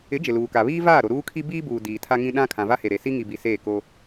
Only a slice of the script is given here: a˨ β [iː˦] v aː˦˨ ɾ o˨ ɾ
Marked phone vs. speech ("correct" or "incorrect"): correct